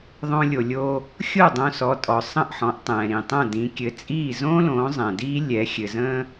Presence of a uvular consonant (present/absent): absent